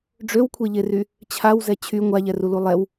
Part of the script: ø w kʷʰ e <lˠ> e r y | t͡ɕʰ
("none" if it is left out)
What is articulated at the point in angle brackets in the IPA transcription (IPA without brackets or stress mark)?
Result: ʎ